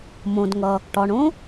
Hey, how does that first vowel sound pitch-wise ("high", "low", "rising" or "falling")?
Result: low